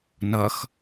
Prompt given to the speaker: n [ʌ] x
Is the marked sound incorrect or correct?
correct